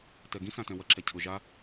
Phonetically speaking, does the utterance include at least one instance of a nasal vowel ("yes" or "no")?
yes